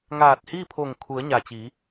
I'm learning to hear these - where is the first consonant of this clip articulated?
velum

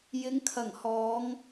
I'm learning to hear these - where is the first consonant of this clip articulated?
palate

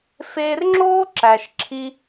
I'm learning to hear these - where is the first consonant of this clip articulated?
lips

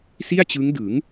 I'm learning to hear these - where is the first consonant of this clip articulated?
tongue tip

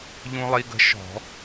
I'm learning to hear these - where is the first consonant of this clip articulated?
palate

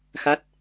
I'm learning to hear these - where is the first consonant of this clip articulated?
velum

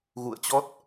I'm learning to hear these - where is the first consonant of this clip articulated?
velum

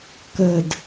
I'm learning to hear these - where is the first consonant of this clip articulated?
velum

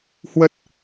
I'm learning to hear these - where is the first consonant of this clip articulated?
throat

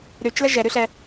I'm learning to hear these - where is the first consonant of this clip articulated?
tongue tip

